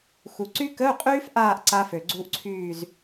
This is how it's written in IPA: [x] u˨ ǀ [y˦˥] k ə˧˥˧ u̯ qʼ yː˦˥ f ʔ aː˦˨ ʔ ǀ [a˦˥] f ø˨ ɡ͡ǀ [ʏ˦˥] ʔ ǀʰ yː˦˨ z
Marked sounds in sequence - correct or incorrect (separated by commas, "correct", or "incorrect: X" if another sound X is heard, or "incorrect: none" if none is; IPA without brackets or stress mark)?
correct, correct, correct, incorrect: u˦˥